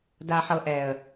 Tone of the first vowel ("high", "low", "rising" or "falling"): low